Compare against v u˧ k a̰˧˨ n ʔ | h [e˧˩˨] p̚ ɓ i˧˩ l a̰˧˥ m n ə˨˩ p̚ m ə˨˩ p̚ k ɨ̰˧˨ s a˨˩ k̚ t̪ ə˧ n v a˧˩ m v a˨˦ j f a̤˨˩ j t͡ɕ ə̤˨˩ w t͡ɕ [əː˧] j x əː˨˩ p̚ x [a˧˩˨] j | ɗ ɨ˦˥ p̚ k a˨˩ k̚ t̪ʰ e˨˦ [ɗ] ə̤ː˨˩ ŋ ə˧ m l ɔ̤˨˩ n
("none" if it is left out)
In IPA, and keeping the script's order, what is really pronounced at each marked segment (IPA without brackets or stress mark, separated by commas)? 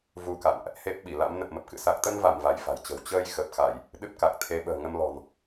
e˦˥, əː˧, a˧˩˨, ɓ